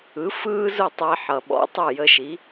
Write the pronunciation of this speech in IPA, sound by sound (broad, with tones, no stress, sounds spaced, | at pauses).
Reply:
ɯ˩˥ f ɯː˥ z ʊ˥˩ tˤ ɛ˧ ħ ʌ˩ ɓ ɔ̰˩˥ tˤ ʊ˥˩ j ə˧ ʃ i˩˥